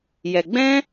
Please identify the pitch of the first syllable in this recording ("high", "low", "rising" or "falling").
low